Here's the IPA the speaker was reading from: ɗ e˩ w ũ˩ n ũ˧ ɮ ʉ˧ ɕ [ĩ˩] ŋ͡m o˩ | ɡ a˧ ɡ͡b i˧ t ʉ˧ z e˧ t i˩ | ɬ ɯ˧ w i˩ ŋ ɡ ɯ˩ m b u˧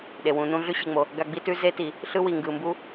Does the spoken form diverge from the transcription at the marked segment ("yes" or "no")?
yes